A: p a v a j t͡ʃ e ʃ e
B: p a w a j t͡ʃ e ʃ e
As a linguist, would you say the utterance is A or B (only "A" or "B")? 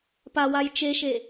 B